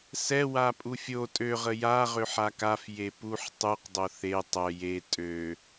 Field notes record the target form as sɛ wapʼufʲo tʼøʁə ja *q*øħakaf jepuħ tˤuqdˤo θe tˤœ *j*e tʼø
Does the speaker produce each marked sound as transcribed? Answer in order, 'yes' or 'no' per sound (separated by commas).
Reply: no, yes